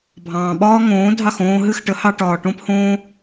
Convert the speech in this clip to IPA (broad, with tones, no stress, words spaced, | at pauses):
bʱɑ̃ː˩ɓɒː˥ŋõː˩˥dʱɑ˥˩x õː˧ ɦɨ˥˩xʈə˩˥hɑ˧ʈɒː˩ ʈõ˥phõː˥